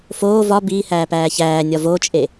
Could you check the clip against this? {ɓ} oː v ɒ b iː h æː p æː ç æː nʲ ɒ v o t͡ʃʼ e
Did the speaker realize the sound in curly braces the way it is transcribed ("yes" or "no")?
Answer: no